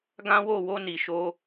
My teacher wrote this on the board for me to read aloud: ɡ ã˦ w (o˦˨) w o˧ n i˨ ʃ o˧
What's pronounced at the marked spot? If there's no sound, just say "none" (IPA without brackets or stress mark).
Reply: o˦˨